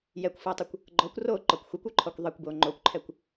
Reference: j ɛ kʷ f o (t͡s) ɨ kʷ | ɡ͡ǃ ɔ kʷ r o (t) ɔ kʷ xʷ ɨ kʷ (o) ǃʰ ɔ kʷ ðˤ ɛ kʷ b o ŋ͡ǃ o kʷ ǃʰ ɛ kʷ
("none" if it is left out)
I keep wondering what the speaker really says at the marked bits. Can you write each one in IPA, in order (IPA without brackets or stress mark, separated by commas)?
tˤ, ǃ, o